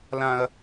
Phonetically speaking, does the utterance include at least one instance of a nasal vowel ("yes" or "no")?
yes